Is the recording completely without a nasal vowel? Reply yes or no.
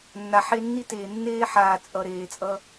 yes